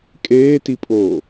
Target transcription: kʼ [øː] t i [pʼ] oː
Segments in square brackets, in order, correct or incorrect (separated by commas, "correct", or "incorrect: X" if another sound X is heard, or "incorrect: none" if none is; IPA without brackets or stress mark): incorrect: eː, correct